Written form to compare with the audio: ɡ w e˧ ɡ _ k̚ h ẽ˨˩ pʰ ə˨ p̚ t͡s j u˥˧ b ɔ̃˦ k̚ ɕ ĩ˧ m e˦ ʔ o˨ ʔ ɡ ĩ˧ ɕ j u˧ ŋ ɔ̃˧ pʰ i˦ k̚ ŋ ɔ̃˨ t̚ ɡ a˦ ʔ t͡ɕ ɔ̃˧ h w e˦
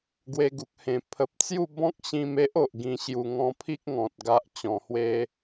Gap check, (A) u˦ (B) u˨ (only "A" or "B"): B